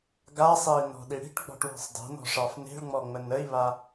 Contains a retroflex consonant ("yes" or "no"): yes